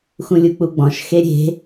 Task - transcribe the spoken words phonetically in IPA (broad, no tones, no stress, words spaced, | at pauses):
xũlʲuk͡puɡ͡bɔ̃ʃ xeɾʲe̤